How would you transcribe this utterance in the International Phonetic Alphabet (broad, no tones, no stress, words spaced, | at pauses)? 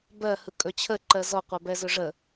bɜhɯ kʼɵt͡ɕʰəǃɜ zɔqʷɜ bɛzɵʐə